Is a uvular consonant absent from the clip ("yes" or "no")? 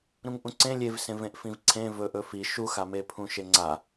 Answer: yes